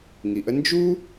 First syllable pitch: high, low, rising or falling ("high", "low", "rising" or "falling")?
low